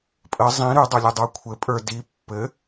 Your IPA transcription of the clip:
pʼ ə zˤ ĩ ɾ ʉ dˤ ɵ lʲ ɘ dˤ ə˞ kʷʰ ɘ pʼ ə˞ d i pː ɘ

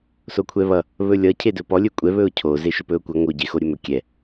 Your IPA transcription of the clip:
s o kʷʰ ɛ β ʌ | β ɵ lʲ ʌ cʰ e d ɵ p ɔ lʲ ɵ kʷʼ ɛ β ɵ ʊ̯ cʰ o z e ʃ ɵ p ɵ ʊ̯ kʷ ʌ ŋ o ɟ e x o ɾʲ ɵ m ɵ kʲ ɛ

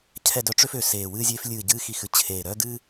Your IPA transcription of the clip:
cʰ ɛ˦˨ d œ˥ ʈ͡ʂ ø˥ f ø˨˩ s eː˨˩ w ɨː˥ zʲ eː˥ f lʲ ɨː˦˨ ɟ ɨː˥ x i˦˨ x ɨ˥ t͡ɕʰ eː˨˩ ɾ œː˥ d ɨː˥

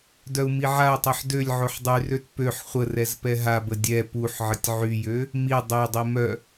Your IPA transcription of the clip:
d œ u̯ m i ʕ a u̯ tˤ ø ħ d ø lʲ ʕ o ħ dˤ y r ø t p ø ħ χʷ ə r ɛ z p ɛ ɦ a b ə dʲ ɛ p u ħ ʕ ə tʲ ʕ y j ø | m i dˤ e dˤ i m œ

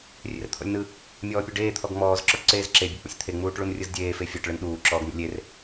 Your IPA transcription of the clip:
rʲ ḛ r t̪ʰ ɔ̰ lʲ n ɯ | mʲ ɔː pʲ u ɖ eː t̪ʰ ɔ ɡ ŋ͡m ɔː z ǁ ɔ ʈ ǀ eː z ǁ e bʲ ɯ k͡p ṵ sʲ t̪ʰ e ŋ͡m uː ʈ ɭ u n rʲ ɯ z dʲ eː f e fʲ ɔ ʈ ɭ ɯ n ɗ uː ǁ ɔː ɡ n̪ ṵ lʲ e r

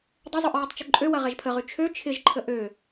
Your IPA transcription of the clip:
dˤ ə zˤ o ʔ ɹ ɛ tˤ t͡ʃ ʊ ǃʼ ø w ɐ ʁ ɛ ʒ pʰ ə ʁ y t͡ʃʰ ø t͡ʃʰ ɪ ʒ ǃʰ ə ʔ ø

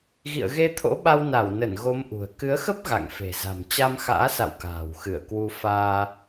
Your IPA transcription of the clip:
ɣ ḭ˧˨ ə̯ ɣ e˧ t̪ʰ o̰˧˥ ɓ a˧ w n a˧˩ w n ə˧˩ n ɣ o˨˦ m ʔ ṳ˨˩ ə̯ k ɨ˨˦ ə̯ x ə˦˥ p̚ ɣ a̰˧˨ ŋ f e̤˨˩ z a̤˨˩ m t͡ɕ a˧ m x a̰ː˧˥ s a̰˧˨ w k a̤ː˨˩ w x ɨ˧˩ ə̯ k w u˧ f aː˧

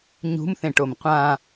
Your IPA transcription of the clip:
ɲ ṳ m θ ẽ ʈ o m qʷ ã

